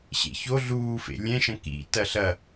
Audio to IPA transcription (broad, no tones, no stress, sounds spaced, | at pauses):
ɕ ḛ ç o ɮ uː f ḛ lʲ ɛ̃ ʃ ɐ̃ k ḭ t ɐ ɬ ɐ